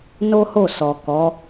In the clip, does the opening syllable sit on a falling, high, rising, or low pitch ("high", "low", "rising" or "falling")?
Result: high